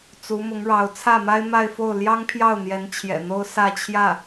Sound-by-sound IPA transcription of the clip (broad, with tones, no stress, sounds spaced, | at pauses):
t͡s u˧˥ m ʊ˧˥ ŋ ɻ ɑ˧˥ ʊ̯ t͡sʰ ä˥˩ m a˥ ɪ̯ m a˥˧ ɪ̯ f o˥˩ ʊ̯ l j ɑ˥ ŋ pʰ j ɑ˥˩ ʊ̯ n̪ j ɛ˧˥ n t͡ɕʰ j ɛ̰˨˩ n̪ o˥ ʊ̯ s ä˥˧ t͡ɕʰ j ä˥˩